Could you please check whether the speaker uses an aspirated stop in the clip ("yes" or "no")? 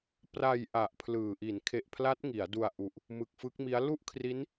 yes